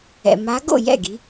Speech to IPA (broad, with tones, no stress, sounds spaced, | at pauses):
ɛ̰˩ m a˨˦ ɡ o̰˥˩ j ɛ̰˥˩ ɡ i˨˦